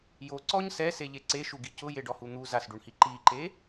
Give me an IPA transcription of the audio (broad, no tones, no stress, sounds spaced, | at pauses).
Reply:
j o ǀ ɔ ɲ s ɛ s e ʎ e ǀ e ʃ u ɡ i c ʊ j e ɖ ɔ h u n̪ u z a s ɖ u ɳ h i ǃ i ǃ e